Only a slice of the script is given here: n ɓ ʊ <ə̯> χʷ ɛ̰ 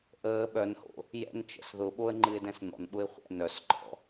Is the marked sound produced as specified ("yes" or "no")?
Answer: no